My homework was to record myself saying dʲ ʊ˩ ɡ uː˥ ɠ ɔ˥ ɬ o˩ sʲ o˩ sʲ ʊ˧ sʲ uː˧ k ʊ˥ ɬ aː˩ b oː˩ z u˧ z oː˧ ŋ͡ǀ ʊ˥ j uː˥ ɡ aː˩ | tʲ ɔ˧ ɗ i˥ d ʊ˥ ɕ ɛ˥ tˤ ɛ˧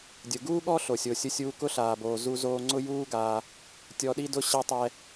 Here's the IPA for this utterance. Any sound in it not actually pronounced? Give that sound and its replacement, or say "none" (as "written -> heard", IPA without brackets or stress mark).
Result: none